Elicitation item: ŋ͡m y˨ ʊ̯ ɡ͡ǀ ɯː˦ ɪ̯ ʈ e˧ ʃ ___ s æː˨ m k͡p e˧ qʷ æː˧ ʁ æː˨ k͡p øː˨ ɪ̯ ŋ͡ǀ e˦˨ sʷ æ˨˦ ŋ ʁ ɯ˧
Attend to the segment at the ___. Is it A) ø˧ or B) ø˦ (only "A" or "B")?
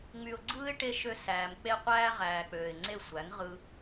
A